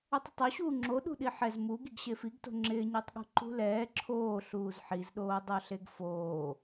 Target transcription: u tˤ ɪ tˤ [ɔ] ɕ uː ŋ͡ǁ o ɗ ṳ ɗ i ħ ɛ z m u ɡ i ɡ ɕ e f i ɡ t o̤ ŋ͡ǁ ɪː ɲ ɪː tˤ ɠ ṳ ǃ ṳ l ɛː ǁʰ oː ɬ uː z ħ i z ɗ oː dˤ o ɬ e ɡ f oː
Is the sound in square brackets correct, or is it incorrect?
incorrect